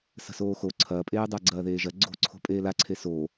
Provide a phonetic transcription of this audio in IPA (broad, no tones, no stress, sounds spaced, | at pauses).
s ə̤ s oː x o ǀʰ ɐː pʼ eː dˤ a ɡ͡ǀ ɐː ð eː ʒ ɐ ɡ͡ǀ o̤ ǀʰ o̤ pʼ eː l a ǀʰ e s o